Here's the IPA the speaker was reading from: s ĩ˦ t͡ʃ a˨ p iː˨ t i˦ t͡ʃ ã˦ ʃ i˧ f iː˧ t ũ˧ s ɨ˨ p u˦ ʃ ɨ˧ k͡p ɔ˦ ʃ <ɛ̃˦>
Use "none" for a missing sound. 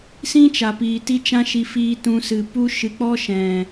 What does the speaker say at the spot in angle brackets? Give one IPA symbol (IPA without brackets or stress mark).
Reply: ɛ̃˨